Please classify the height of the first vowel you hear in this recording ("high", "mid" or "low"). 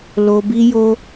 mid